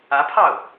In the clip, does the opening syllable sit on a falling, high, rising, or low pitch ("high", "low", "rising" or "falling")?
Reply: rising